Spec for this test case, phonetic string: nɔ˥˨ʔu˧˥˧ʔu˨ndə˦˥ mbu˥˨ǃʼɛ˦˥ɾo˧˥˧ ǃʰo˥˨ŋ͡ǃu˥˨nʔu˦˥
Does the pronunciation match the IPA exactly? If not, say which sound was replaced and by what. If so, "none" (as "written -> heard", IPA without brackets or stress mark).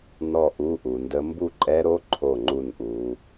none